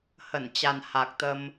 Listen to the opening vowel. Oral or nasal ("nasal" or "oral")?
oral